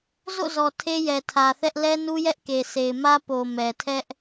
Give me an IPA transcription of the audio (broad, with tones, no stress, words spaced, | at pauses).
zo̰˦˨zɔ˨ tʰe˦jɛ˨tʰä˨θɛ˦ʔ lɛ˦nu˦jɛ˦ʔke˨ se˨ɪ̯mä˦ po˨ mɛ˨tʰɛ˦ʔ